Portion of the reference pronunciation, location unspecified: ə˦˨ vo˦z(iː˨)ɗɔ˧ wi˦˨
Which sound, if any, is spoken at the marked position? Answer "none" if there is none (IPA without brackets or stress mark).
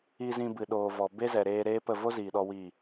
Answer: iː˨